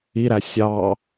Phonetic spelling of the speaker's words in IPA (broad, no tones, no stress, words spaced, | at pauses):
iɾæ sʲɑ